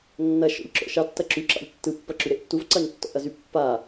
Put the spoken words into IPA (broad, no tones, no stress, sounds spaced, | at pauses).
nː ɐ ʃ ɔ̰ ʎ ǁ ɔ̰ ʃ ɑ tː ɐ ǁ y ǁ ɑ̰ ʎ tː ɯ pː ɐ ǁ y ɾ e ʔ tː u v ǀ ɑ ɲ tː ɔ̰ ʔ ɐ z y pː a